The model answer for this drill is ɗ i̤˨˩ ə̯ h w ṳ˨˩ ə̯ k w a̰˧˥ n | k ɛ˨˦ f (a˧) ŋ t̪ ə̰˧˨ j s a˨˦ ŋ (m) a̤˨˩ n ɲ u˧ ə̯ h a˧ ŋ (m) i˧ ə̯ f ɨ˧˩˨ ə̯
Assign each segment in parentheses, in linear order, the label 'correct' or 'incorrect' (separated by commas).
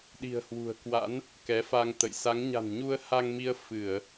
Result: correct, incorrect, correct